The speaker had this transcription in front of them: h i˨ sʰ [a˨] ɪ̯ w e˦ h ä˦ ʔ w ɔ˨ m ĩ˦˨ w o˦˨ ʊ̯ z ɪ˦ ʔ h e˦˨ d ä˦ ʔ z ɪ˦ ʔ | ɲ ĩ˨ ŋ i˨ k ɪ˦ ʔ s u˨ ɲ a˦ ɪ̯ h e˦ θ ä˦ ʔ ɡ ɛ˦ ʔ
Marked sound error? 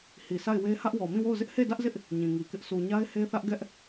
yes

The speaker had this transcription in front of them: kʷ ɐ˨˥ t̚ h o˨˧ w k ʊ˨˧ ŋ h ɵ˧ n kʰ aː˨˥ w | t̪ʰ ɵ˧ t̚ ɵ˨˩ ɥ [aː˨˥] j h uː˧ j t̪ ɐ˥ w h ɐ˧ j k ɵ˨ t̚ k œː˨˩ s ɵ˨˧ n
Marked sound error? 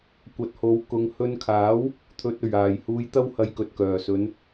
yes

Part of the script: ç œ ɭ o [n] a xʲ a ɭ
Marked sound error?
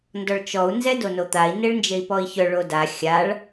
yes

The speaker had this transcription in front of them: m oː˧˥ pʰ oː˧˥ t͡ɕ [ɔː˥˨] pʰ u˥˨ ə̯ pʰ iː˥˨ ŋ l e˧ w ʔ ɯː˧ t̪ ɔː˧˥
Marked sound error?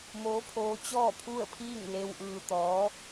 no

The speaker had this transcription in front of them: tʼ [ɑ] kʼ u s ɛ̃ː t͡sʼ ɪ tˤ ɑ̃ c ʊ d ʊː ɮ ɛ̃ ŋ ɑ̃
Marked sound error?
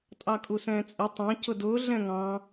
no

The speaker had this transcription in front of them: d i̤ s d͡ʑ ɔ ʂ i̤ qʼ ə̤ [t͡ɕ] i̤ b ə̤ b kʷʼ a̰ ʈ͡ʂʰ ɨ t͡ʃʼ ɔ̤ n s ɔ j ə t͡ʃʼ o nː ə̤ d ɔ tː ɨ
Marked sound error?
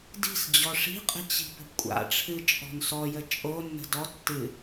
no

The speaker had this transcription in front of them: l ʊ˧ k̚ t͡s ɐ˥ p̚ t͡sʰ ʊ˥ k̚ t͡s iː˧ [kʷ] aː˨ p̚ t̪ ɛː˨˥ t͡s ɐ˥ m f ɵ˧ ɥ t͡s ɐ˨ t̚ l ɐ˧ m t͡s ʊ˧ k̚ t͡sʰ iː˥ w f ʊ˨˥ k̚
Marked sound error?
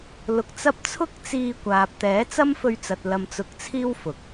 no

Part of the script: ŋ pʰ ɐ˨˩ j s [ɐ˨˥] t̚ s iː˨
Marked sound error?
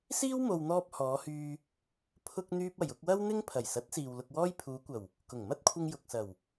no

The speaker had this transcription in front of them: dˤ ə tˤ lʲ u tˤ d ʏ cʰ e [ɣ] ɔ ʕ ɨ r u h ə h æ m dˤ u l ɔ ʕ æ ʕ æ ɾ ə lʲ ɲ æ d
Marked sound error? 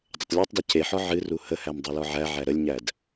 yes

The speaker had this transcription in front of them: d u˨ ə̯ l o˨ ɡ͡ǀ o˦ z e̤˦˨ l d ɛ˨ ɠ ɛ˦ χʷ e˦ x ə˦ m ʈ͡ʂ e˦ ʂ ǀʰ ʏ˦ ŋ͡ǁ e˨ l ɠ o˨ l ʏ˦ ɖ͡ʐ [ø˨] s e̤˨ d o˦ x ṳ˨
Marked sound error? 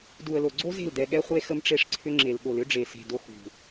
yes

